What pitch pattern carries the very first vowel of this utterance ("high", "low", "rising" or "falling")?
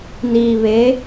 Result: low